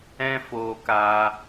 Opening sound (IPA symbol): ɛ̃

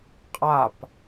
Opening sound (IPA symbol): qʼ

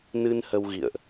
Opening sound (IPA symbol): n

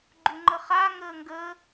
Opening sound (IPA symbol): ɡ͡ǃ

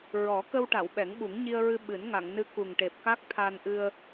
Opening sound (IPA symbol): ɹ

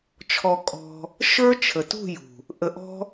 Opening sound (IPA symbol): t͡ʃʰ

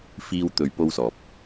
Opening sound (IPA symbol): f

